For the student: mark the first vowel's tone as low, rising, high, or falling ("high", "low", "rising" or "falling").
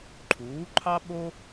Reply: rising